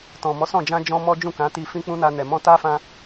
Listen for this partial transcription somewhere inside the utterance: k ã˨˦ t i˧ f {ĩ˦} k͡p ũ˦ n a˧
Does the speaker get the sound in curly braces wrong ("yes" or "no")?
no